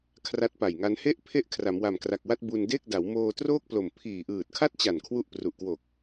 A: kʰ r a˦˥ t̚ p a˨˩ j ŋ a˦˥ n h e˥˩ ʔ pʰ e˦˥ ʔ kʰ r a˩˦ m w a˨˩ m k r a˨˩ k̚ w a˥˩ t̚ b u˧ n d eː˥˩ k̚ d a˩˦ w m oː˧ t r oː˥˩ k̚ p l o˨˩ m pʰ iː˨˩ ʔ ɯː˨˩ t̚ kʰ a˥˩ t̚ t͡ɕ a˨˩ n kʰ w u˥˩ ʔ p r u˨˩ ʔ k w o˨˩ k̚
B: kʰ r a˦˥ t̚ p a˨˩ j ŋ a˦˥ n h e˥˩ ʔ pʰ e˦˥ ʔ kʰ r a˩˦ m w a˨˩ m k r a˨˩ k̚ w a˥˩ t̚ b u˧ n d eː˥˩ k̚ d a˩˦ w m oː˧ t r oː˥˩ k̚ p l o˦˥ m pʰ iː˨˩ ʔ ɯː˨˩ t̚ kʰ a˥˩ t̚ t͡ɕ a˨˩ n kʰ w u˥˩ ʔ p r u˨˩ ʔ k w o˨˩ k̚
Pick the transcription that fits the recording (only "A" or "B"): A